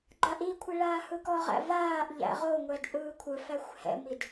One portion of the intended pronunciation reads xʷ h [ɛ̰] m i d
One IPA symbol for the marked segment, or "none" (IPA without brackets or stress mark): ɛ̰